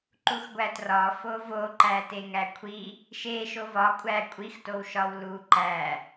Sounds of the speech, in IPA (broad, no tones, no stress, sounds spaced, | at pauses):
ǃ u x ɡʷ æ t r ɒ f o v o ǃ æ t e ŋ æ kʷʰ i | ʃ e ʃ o v ɒ kʷʼ æ kʷʼ i x t o w ʃ ɒ w l u ǃ æ